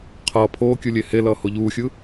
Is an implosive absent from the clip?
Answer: yes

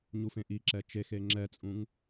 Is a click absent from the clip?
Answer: no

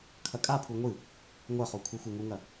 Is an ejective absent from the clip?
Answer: no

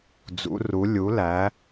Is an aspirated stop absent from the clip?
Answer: yes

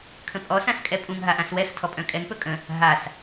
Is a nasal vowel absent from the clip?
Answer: no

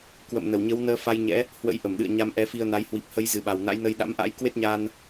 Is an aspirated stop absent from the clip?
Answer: yes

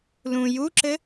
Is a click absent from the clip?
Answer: no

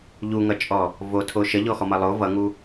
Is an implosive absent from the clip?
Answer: yes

